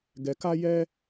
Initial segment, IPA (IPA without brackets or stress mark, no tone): ɡ